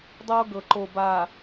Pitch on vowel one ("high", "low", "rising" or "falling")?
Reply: high